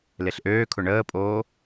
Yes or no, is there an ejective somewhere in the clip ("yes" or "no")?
yes